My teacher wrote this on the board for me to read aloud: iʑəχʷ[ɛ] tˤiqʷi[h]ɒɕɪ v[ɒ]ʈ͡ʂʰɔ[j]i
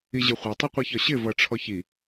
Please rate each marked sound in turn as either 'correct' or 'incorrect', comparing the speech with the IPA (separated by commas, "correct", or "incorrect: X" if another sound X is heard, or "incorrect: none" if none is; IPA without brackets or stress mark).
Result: correct, incorrect: ç, incorrect: ʌ, incorrect: ç